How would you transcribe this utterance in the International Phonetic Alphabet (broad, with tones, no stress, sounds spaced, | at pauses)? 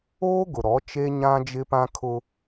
oː˦ ɡ ʊ˨ ɾ ɔ˨˦ t͡ʃ e˦ ɲ ã˦ d͡ʒ ɪ˦ p ã˦ kʰ ʊ˦